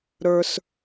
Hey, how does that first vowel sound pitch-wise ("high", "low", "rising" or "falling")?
high